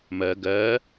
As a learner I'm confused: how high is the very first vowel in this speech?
mid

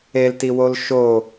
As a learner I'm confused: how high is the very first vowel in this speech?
mid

